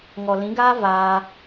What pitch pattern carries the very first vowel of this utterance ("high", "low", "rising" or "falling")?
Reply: low